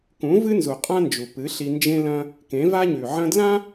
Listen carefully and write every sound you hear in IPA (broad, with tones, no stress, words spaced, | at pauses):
kũ˨˦ vɨ˦nzu˨qʼã˦nd͡ʒu˨ pɨ˨˦ɬi˧nd͡ʒẽ˦lɐ̃˦ | kẽ˨˦va˦ɲʉ˨ʕɐ̃˦ dlã˦